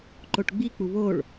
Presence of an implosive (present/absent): absent